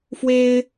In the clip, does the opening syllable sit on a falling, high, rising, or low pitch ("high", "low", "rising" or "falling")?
high